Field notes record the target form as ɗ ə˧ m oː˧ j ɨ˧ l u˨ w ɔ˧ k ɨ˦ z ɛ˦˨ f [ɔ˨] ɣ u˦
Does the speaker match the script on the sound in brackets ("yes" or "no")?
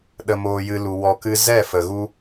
no